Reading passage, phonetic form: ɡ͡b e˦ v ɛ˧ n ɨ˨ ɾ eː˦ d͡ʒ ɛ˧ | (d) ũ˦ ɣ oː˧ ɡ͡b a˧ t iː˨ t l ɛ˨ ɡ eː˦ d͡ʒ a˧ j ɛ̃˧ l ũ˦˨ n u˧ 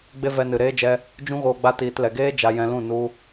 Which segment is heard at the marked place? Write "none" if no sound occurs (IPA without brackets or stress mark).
d͡ʒ